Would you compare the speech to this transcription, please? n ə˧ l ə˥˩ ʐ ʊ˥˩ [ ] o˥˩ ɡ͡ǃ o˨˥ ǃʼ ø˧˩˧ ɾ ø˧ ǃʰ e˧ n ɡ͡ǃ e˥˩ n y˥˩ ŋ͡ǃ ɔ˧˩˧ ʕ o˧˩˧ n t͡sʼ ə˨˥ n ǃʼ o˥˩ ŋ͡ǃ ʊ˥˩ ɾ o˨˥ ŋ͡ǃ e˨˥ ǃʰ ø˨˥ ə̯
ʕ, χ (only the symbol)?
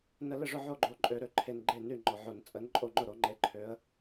ʕ